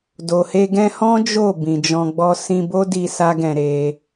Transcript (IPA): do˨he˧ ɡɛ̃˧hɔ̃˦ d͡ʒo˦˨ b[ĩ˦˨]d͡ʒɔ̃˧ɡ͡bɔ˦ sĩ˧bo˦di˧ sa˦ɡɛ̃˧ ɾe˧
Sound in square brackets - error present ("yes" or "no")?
yes